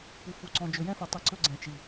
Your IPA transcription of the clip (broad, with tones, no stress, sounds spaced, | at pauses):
p u˨ f u˨ ǀ ɔ̃˨ d͡ʒ ɵ˨ j ɛ̃˦ f ɛ˨ tˤ i˨˦ ǀ ɵ˦ ɡ͡ǀ ɛ̃˨ t͡ʃ i˨